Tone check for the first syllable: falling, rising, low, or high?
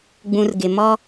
low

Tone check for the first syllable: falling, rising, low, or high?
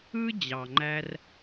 high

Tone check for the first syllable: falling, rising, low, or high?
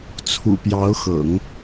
low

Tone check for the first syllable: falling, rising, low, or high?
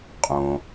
low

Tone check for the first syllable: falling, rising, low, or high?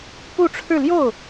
falling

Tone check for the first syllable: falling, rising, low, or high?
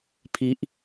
high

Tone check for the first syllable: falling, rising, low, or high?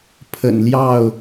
low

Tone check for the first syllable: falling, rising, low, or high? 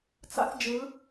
high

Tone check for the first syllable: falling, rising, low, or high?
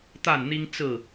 falling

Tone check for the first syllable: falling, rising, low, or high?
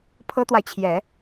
high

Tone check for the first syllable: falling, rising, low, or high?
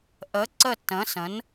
rising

